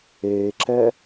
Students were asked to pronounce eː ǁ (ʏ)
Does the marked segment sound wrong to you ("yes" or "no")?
yes